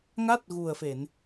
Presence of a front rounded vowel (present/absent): absent